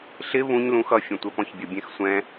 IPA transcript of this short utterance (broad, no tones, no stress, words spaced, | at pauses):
ɬɪ βũɲ lũxʌ fʲɛ̃tʷɛpɔ̃çbʲʌ bʲɛ̃xsʷɛ̃